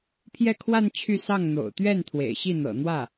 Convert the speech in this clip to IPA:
pʰjɛ˥˧kʰwa˥˧n t͡ɕʰy˥˧sɑ˥˩ŋ n̪o̰˨˩ʊ̯t̪ɥɛ˥˩n t̪ʰwḛ˨˩ɪ̯ɕi˥˩ n̪ɤ̰˨˩n̪wä˥˩

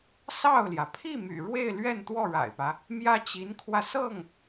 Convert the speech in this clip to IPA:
sɑ˥˩ʊ̯ljä˩ pʰi˥˩my̰˨˩ ɻwe˥˧ɪ̯lɥɛ˥˧n t̪wɔ˥˩ɻa̰˨˩ɪ̯pä˦ | mjä˥t͡ɕi˧˥nkʰwä˧sɤ˥˩ŋ

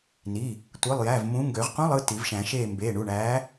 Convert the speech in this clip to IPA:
ni˩˧˩ | tʷɯ˩˧˩lˠjæ˩˧˩v mũ˨˥ ŋɡø˨˩˦ʁqũ˧˥˧lˠ ɯ˩˧˩ ti˨˩˦vʃæ̃˨˩˦ʃeː˦˨ mbeː˩˧˩ɳu˩˧˩ɳæː˨˥

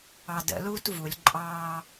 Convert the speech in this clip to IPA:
ɑdə̰ luːtvulʲ ǃʼɑː

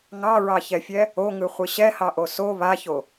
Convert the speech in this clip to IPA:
ŋɑɹɑçɛfʲɛ | oŋɯχʷɨ ɕɛhɑʔo so βaço

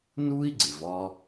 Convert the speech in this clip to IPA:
nu˥i̯ɡ͡ǀɪ˩vɒ˧

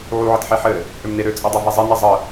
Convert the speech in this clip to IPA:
ʕuʕətħeħɘ | ʔømneɾø t͡sʼidˤɛvezˤe nizˤə

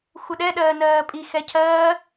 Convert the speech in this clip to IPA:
xʷəɗɛ ɗɜːnɜːpʼi xɛcʰɜː

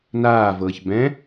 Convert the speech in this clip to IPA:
naːvɤːç bɛ̃

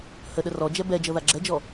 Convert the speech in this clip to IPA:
həɗə rɔd͡ʒɛ bɛd͡ʒɤ ðaɡ͡ǁɛd͡ʒɔ

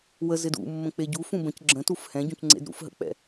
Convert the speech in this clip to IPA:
wə zɪdṵmːə̃ k͡peɟu fũbə̃c ɡ͡ǁə̃tuf hɛ̃ɟũcŋ͡ǀḛd ɾṵfɦə̰k͡pɛ̰

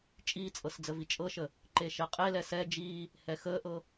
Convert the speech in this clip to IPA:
t͡ʃʼiːt͡sʼɤs d͡zəvit͡ʃʼɤʃə | ǃeʃɛqʼelɛ sɛ d͡ʒiː | hɛxəːʔɤ

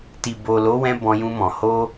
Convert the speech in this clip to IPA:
ti˨bo˨lo˨˦wɛ̃˧ bɔ̃˧jũ˧mɔ̃˨ ho˧

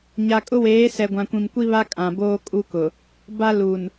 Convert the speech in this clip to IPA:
ɲa˨kʼʊ˦weː˨˦sɛ˨ ɡʷã˨kʷĩ˨mkʷi˦βa˦ kʼã˨boː˦kʼu˦kʊ˨ | ba˦ lu˨n

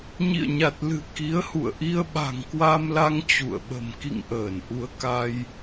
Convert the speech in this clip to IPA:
ɲḭ˧˨ə̯ɲa˨˩t̚lɨ̤˨˩ ki˨˦ə̯hṵ˧˨ə̯ʔi˧ə̯ ɓa̤˨˩ŋkwa˧mla˧ŋ t͡ɕṵ˧˨ə̯ɓə̤˨˩m kḭ˧˨ŋ ʔəː˧˩nʔu˨˦ə̯ ka˧j

